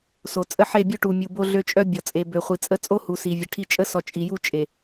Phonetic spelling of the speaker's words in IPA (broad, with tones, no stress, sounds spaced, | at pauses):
s o˨ t͡sʼ ə˦˨ ħ e˦˨ bʲ o˦ ʈ u˨ mʲ u˨ b o˦ ɮ ø˦ t͡ʃʼ œ˦ bʲ ɔ˨ t͡sʼ e˨ b ø˨ χʷ i˨ t͡sʼ ə˦ t͡sʼ o˦ h u˨ s i˨ vʲ ə˨ ʈʰ i˦ t͡ʃʼ ə˦ s ɔ˨ t͡ʃʼ i˨ j u˦˨ t͡ʃʼ e˨